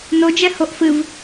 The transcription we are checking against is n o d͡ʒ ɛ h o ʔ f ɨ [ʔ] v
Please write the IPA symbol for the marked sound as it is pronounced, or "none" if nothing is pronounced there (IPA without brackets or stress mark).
none